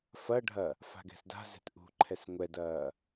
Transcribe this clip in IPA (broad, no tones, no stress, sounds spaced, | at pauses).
f ɐ ɖʱ ɐ | f a̤ ɡ ɛ̤ s d a̤ z ɛ̤ t ʔ ṳ ǃʰ ɛ s ŋʷ ɛ d ɐː